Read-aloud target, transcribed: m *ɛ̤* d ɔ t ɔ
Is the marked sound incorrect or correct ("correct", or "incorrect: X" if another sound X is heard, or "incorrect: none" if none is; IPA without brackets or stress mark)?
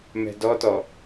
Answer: correct